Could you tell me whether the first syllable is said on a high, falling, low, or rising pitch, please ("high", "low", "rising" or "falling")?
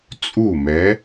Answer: falling